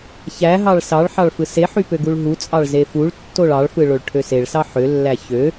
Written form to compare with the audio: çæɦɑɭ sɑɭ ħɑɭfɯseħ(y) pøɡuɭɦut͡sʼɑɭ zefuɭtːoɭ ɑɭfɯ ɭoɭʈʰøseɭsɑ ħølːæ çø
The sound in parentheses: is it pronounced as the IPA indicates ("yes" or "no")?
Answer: yes